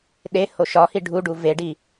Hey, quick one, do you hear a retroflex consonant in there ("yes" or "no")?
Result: yes